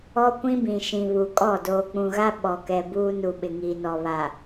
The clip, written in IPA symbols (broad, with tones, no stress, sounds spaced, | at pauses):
ɔ˦ kʷ ĩ˦ b ĩ˨ ʃ ĩ˨ β u˨ kʼ ɔ˦˨ d oː˨ k͡p ũ˨ ɣ a˦ ɓ ɔ˨ k ɛ˨ b uː˦ n u˨ ɓ ɪ˨ ŋ iː˨ n ɔ˨ β a˨